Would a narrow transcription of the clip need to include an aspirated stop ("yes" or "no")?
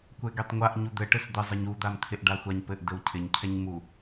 yes